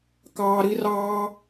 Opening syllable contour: low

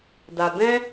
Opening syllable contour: low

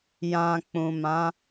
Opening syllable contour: low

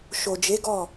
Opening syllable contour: low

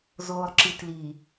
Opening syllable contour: low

